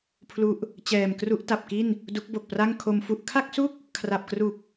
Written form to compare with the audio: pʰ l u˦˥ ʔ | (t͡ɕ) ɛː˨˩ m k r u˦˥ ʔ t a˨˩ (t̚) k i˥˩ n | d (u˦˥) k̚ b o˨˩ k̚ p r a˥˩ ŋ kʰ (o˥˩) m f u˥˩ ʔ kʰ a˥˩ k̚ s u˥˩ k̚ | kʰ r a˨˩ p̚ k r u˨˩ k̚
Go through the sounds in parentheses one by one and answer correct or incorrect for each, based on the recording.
correct, incorrect: p̚, correct, incorrect: o˧

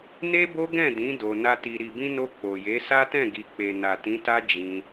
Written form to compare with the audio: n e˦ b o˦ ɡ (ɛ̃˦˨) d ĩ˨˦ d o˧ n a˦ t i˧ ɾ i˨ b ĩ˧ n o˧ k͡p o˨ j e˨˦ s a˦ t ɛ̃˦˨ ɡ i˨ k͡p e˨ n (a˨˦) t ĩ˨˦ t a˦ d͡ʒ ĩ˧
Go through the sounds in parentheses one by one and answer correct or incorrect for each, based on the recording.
correct, incorrect: a˨

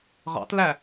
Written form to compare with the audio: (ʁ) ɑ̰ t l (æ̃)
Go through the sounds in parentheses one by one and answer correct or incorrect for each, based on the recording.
correct, incorrect: æ

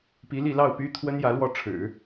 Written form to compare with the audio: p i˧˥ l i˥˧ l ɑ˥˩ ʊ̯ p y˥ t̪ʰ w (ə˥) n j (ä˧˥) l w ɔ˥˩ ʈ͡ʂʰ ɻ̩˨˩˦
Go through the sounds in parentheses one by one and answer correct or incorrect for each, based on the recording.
correct, correct

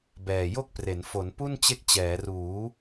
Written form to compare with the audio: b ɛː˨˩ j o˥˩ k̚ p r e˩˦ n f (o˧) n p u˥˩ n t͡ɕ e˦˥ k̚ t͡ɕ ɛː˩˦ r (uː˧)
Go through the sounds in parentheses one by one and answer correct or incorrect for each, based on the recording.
incorrect: o˩˦, incorrect: uː˩˦

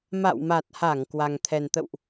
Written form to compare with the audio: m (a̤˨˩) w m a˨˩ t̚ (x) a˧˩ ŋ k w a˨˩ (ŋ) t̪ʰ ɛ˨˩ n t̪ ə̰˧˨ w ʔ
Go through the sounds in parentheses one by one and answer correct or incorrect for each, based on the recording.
incorrect: a̰˧˨, incorrect: h, correct

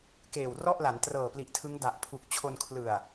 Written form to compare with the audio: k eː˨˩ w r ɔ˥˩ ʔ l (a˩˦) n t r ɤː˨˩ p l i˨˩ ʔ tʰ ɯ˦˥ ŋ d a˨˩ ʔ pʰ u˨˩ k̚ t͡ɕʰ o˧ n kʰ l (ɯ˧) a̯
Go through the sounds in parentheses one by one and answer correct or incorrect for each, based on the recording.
correct, incorrect: ɯ˨˩

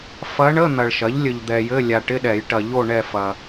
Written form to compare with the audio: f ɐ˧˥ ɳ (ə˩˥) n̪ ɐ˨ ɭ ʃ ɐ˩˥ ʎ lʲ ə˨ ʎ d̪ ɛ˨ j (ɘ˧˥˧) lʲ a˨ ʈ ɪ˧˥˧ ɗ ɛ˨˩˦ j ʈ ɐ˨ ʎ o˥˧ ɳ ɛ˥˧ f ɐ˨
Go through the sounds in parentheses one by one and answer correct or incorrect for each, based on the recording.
incorrect: ə˧˥˧, correct

